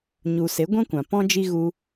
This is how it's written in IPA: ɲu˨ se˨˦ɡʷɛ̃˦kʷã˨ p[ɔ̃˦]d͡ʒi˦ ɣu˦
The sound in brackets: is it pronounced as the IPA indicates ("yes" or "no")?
yes